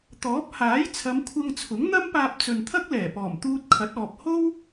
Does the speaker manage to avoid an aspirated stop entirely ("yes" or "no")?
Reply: no